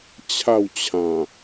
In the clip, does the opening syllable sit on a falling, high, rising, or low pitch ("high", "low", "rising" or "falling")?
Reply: falling